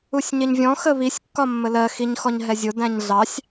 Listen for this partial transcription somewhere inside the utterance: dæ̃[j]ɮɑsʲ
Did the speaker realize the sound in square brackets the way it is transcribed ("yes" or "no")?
no